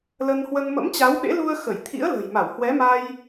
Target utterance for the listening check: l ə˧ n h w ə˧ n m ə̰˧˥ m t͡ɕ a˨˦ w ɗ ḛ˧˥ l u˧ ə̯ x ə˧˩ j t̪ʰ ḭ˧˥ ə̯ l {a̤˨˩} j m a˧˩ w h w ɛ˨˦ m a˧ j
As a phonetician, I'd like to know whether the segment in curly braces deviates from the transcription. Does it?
yes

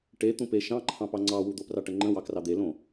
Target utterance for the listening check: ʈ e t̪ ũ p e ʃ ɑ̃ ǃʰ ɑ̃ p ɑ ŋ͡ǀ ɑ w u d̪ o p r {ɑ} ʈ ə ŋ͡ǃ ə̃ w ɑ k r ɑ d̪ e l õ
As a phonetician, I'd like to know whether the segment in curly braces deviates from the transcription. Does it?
no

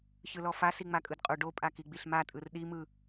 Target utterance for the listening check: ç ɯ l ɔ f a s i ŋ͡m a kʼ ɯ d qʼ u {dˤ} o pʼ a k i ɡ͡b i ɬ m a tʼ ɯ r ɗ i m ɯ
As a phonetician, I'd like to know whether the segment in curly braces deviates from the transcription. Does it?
yes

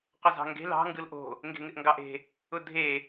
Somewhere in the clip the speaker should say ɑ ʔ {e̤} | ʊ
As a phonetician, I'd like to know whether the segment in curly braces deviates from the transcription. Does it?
no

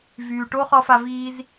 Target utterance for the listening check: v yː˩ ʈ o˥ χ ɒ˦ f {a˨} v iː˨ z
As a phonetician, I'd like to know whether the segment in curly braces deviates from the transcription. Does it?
no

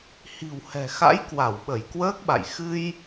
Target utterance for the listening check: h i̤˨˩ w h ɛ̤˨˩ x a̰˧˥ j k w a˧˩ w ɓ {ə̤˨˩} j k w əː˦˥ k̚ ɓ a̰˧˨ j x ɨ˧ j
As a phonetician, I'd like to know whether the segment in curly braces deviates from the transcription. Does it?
yes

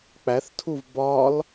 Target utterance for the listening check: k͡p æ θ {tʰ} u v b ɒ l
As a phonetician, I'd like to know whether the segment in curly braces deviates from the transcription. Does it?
no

